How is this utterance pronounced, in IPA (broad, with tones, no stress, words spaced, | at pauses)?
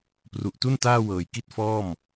pru˨˩ʔtu˥˩n taː˥˩wɤː˨˩jki˥˩t̚fɔː˥˩m